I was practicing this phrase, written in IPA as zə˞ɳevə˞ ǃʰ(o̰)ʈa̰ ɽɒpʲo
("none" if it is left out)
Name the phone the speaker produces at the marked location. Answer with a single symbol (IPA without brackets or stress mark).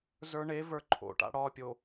o̰